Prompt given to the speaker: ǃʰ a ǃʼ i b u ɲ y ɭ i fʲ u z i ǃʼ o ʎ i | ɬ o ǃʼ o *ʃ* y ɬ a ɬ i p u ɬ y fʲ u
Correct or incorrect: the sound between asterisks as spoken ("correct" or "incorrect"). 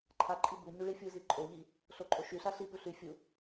correct